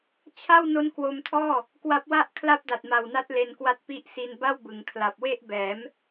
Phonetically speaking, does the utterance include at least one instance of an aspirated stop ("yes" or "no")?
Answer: yes